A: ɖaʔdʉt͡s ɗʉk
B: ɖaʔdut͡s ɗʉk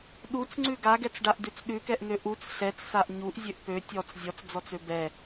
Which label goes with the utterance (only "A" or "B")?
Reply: A